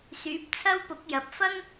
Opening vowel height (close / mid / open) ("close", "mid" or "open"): close